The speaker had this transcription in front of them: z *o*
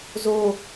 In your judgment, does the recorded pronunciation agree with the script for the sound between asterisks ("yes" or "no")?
yes